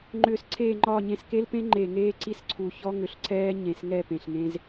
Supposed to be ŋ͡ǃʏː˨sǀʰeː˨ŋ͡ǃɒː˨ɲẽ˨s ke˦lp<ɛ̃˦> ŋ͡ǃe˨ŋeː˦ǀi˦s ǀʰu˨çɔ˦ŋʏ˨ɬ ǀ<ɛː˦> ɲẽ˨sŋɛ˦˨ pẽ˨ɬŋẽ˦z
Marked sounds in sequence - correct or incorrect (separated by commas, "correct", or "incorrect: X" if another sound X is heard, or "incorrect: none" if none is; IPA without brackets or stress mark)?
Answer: incorrect: ẽ˦, correct